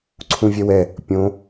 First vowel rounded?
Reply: yes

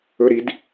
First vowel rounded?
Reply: yes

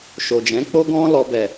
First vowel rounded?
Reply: yes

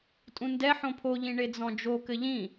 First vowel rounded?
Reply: yes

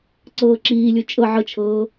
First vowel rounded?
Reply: no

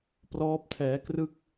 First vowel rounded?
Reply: yes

